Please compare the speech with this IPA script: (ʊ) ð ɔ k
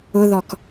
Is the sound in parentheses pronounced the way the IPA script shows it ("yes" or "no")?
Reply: yes